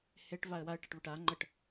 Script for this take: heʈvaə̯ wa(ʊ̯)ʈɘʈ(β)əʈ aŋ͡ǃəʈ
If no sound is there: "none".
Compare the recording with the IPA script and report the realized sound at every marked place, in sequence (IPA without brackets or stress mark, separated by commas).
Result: ə̯, β